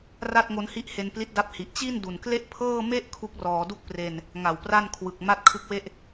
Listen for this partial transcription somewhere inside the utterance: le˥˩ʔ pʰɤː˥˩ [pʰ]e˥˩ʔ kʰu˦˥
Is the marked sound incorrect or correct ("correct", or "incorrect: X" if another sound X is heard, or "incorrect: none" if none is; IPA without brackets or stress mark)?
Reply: incorrect: m